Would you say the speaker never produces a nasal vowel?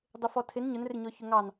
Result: yes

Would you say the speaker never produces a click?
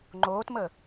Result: no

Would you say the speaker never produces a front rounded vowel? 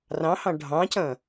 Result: yes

